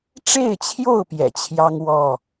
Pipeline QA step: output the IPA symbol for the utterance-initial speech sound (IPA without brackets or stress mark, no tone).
ʈ͡ʂ